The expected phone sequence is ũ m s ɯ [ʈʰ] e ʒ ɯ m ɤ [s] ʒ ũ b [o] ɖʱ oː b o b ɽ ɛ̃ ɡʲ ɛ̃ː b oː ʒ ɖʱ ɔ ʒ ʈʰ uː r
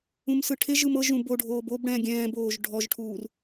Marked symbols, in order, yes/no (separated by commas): yes, no, yes